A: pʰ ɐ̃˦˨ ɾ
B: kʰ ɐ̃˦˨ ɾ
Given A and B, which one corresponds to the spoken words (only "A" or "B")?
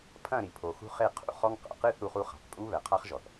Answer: A